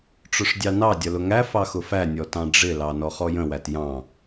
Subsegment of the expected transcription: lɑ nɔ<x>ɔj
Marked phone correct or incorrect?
incorrect